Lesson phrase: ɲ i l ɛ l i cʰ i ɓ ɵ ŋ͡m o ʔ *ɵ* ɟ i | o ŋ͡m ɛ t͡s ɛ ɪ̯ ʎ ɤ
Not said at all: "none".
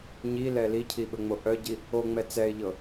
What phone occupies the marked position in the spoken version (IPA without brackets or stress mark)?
œ